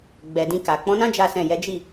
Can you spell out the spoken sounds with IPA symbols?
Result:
ɡ͡b ɛ˨ d ĩ˧ k a˨ k͡p ɔ̃˨˦ n ã˦ d͡ʒ a˦ s ɛ̃˦˨ j ɛ˨˦ d͡ʒ i˦˨

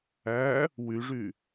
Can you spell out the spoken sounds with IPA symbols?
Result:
æ | w y ʐ y

